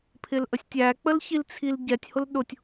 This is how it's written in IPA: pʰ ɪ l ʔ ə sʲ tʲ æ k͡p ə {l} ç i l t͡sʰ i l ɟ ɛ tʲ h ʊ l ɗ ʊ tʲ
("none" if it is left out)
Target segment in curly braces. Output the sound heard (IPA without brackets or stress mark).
l